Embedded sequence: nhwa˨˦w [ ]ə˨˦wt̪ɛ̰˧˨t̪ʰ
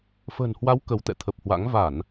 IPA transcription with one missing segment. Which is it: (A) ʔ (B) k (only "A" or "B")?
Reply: B